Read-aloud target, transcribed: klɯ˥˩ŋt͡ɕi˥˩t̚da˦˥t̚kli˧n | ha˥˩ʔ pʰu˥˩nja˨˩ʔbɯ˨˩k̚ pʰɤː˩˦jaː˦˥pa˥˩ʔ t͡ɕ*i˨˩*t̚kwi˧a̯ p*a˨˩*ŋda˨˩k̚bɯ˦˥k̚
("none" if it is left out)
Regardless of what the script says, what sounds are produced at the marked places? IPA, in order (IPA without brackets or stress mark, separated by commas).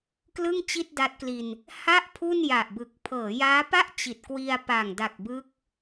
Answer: i˨˩, a˨˩